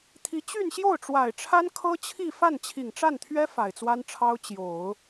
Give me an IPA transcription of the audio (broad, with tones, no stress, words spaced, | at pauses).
t̪ʰi˧˥ t͡ɕy˥˧nɕjo˥˩ʊ̯ʈ͡ʂwa˨˩ɪ̯ʈ͡ʂʰa˥n kʰɤ˥t͡ɕʰi˥˧ fa˥˩nt͡ɕʰi˨˩ŋʈ͡ʂa˥˩nt̪ʰɥɛ˥ fa˨˩ɪ̯t͡swa˥nʈ͡ʂʰɑ˥ʊ̯ t͡ɕjo˨˩˦ʊ̯